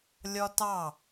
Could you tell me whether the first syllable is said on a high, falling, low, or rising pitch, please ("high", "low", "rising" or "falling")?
high